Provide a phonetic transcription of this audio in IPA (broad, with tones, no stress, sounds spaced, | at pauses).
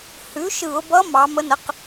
h ʉ˩˥ ʃ ɯ˧˩˧ ʊ̯ b ʌ˧˥ m ɑ˩˧ m ə˧˥ n ə˩˥ q